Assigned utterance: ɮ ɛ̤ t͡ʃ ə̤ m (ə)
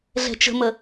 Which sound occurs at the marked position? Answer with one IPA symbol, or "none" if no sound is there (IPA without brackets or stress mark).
ə